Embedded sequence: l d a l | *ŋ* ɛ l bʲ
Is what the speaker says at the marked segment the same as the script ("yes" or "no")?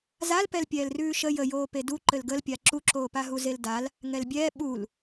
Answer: yes